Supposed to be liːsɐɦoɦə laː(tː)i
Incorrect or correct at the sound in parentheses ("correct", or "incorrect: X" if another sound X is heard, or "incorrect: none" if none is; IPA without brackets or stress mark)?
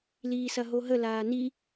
incorrect: n